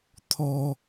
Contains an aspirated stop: yes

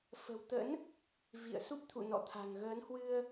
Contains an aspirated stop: yes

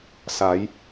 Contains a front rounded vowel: no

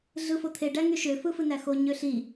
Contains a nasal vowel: no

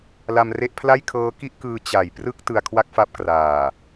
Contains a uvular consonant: no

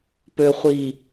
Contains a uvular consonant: yes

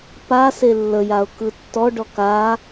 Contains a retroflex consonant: yes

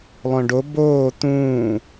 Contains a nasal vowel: yes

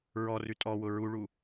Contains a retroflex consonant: yes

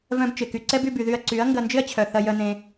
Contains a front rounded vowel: yes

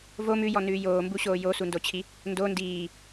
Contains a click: no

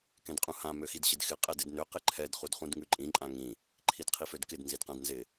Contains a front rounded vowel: yes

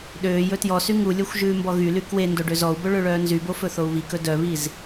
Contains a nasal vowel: no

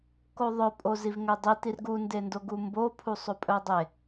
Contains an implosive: no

